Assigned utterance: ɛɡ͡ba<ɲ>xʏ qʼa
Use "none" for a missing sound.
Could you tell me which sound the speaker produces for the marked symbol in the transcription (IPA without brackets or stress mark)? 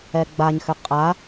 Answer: ɲ